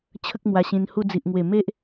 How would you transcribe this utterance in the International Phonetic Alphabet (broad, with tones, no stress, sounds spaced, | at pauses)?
t͡ɕʰ ə˦ k̚ m w a˧ ɕ ĩ˧ n h u˧ d͡z i˨ ʔ ŋ w e˨˩ m e˦ ʔ